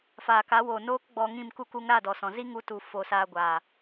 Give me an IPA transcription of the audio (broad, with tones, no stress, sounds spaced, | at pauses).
f aː˨ k a˨˦ w oː˨ n oː˦ k ɡ͡b ɔ˧ ŋ ĩ˦˨ m k u˦ k u˧ ŋ ɾ a˦˨ d ɔ˨ s ɔ̃˨ z i˦ ŋ u˧ t u˨ f o˧ s aː˧ ɡʷ a˨